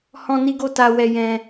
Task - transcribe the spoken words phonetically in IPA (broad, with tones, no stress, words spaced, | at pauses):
hɔ̃˦ni˦ɡo˦ ta˦ wɛ˦ jɛ̃˦